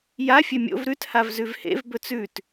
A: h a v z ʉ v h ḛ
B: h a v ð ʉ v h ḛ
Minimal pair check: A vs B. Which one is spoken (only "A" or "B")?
A